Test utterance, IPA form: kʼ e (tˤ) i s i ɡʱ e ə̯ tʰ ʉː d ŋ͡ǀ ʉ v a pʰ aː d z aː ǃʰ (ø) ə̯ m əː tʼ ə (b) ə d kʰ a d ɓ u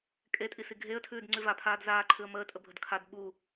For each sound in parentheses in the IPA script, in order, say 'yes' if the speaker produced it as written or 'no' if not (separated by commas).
no, no, no